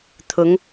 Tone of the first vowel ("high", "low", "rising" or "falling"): rising